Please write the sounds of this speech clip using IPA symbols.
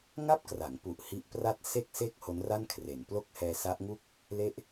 ŋa˥˩p̚kra˩˦ŋpu˨˩ʔ hi˦˥ʔpra˥˩t̚ se˥˩k̚se˥˩k̚ ho˦˥nra˥˩n kʰre˩˦nplo˥˩k̚hɛː˧ sa˦˥ʔŋu˥˩k̚ | le˥˩ʔ

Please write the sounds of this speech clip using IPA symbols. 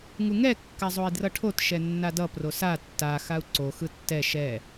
ŋuŋɛ kːazˤoi̯drʌʈʰot ʃɛnːadʌ prosa tːa xau̯ǀo xɯtːɛ ʃɛ

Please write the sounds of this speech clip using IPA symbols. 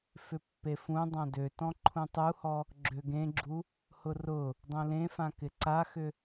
fʏpːefũ dˤãdøtɔ̃ ǃʰũtˤuhɔ | ɡ͡ǁøɡẽɡ͡ǁu | hʊrʊ | dˤũlẽfã kɪǀaxʏ

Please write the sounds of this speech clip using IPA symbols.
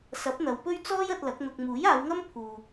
sɐ˨˥p̚n̪ɐ˨˧wpɵ˥ɥ t͡sɔː˥jɐ˧t̚ lɐ˨˥k̚n̪ʊ˧k̚ muː˨˥jaː˨˧wŋɐ˥m pʰuː˧

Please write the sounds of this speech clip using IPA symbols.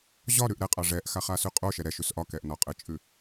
ʑɒɾʉʔ ɾɛqʼɑ ʐɛʔxaχasʉ qʼoʃɛ ɾɛʃʉs ʔɒkɛʔnɒ qʼɘt͡ʃʼʉ

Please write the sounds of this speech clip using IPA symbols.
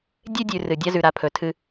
dʲe˦dʲʉ˨ rɨ˨dʲa˦ zʉ˨ɾa˨pʰɵ˨tʰɨ˦

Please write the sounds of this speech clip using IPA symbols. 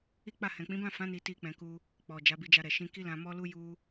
i˦k͡pa˦˨ hɛ̃˨k͡pĩ˨˦bã˦˨fã˨˦ ni˧ ti˧ k͡pɛ̃˧ku˧ | k͡pɔ˨ d͡ʒa˨˦bi˧d͡ʒa˧ ɾɛ˨ʃĩ˧ ki˦lã˧ mɔ˦lu˦ ju˦

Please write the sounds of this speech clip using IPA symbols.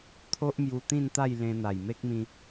t̪ʰo˦ʔmju˧t̪ĩ˥˧nt̪a˥˧j lẽ˧n̪a˨˩jme˦k̚mĩ˧

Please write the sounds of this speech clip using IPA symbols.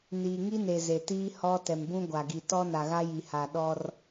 niː˨ŋi˦ne˨ ze˨tiː˦ hɔ˦ tɛ˨mbũ˦ɡʷa˨ɡi˨ tɔ˦na˨ɣa˦ ji˨ha˨ ɗɔ˦r

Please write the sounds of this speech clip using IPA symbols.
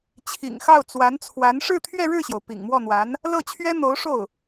t͡ɕʰḭ˨˩ŋxɑ˥˩ʊ̯ t͡swa˧˥nt͡sʰwa˧˥n ʂɻ̩˥˧t̪ʰɥɛ˥˧ɻɻ̩˥˩ɕjo˩ʊ̯ pḭ˨˩ŋmwɔ˥˩n̪wa˧˥n | lɤ˥˩t͡ɕʰɥɛ˥ n̪o˧˥ʊ̯ʂo˥˩ʊ̯

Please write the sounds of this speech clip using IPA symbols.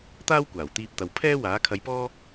t̪aː˥wkʷaː˨˩wt̪iː˧p̚t̪ɐ˨w pʰɛː˥waː˨˥kʰɐ˧jpɔː˥

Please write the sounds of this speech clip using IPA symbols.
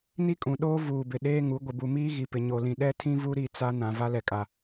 ni˦kʼũ˨ɗoː˦ vuː˨bɪ˨ ɗeː˦ŋu˨˦ ɡʷɪ˨bu˨miː˦ ɣi˨pɪ˨ ɲo˨lĩ˨ ɗɛ˦tʰĩ˦vu˦ ɾi˦ t͡sa˦nã˨ va˦lɛ˨kʼa˨

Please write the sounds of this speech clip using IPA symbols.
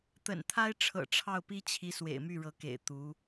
t̪ə̰˨˩nt̪ʰa˥ɪ̯ʈ͡ʂʰɤ̰˨˩ ʈ͡ʂʰɑ˥˩ʊ̯pi˥t͡ɕʰi˧˥ swḛ˨˩ɪ̯my˥˩ɻɤ˧˥kḛ˨˩ɪ̯ t̪u˧˥

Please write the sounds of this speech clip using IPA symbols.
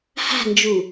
ha̤nd͡ʒu

